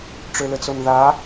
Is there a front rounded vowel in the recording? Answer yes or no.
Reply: yes